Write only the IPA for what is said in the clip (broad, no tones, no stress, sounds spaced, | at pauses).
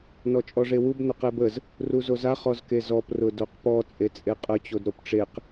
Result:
n ɔ t͡ʃʼ ɔ ʐ e w u b n ʊ q e b ə z | r u z o z a χ ɔ z k e z ɔ p r ʊ d o q p ɔ t͡sʼ e t͡sʼ e qʼ ə t͡ɕ o d ɾ o p ʈ͡ʂ e q